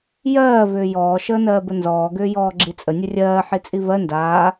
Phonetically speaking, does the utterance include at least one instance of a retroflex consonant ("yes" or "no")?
no